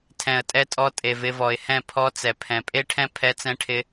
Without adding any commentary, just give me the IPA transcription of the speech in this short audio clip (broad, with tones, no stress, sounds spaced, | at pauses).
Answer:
tʰ ɛ̃˨ ə̯ tʼ ɛ˧ tʼ ɔ˧ tʼ e˨ v ɪ˧ v ɔ˨ ɪ̯ h ɛ̃˦˨ pʰ ɔ˧ t͡s ɛ˨ pʰ ɛ̃˨ pʼ e˦ ʈʰ ɛ̃˦ pʰ ɛ˧ t͡s ɛ̃˧ ʈʰ ɪ˧